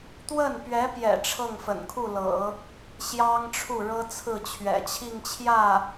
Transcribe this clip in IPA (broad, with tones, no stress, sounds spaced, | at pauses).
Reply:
t̪ w ə˥˩ n p ɥ ɛ˧˥ p j ɛ̰˨˩ ʈ͡ʂʰ ɤ˥˩ ŋ f ə̰˨˩ n kʰ u˥˩ l ɤ̰˨˩˦ | ɕ j ɑ˥ ŋ ʈ͡ʂʰ u˥˩ ɻ ɤ˥ t͡sʰ ɹ̩˥˩ t͡ɕʰ ɥ ɛ̰˨˩ t͡ɕʰ i˥˧ ŋ t͡ɕʰ j ä˥˩